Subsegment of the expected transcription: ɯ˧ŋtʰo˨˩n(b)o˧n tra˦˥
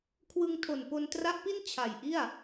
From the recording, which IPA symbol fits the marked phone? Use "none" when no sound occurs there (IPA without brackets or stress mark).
p